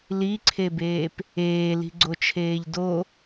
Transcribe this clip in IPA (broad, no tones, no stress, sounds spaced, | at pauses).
l i ǀʰ e b eː p | eː l i̤ ɡ͡ǀ o t͡ʃʰ eː ʎ d o